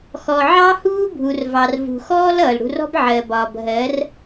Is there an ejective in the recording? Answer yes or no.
no